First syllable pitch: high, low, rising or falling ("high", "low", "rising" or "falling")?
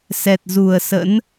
low